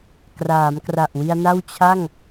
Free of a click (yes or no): yes